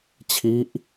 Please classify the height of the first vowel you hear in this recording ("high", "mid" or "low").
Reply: high